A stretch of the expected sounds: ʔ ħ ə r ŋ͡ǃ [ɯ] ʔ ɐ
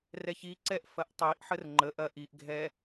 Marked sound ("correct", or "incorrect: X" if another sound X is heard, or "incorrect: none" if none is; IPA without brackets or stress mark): incorrect: ə